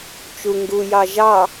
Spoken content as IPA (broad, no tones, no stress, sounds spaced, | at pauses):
t͡ʃ u ŋ ɡ u j ɑ ʒ ɑ